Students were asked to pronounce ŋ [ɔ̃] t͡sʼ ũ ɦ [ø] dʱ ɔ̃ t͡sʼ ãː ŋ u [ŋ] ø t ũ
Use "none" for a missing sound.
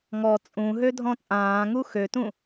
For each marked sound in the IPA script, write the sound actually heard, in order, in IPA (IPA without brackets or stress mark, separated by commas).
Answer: ɔ, ø, x